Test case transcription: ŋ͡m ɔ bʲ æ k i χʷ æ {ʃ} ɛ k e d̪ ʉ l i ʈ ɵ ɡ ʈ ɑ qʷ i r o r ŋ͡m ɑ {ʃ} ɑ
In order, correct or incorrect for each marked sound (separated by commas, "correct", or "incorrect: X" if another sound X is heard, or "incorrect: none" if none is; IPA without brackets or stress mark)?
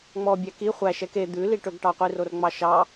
correct, correct